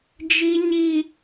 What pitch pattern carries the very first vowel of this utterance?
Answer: high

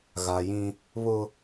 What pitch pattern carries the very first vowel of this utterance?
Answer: low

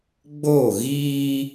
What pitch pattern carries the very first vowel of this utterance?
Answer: falling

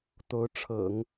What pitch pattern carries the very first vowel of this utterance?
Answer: rising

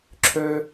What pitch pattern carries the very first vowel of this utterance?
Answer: high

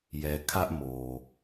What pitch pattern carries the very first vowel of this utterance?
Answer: low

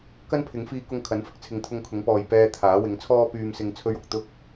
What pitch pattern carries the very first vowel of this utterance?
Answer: high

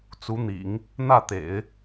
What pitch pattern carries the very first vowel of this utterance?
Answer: rising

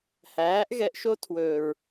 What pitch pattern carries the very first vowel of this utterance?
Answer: rising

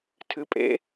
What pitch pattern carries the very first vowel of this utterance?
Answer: rising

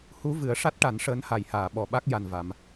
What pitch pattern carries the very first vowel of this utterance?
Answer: rising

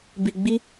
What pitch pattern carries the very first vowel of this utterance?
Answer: low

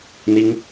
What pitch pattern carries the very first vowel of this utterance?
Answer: high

